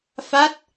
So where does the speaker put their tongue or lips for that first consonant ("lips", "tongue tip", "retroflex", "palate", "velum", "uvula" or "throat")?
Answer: lips